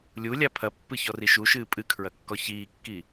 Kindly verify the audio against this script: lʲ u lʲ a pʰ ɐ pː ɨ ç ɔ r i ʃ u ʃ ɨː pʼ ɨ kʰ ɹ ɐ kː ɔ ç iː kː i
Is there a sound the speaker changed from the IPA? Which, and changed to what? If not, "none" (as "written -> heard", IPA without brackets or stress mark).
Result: none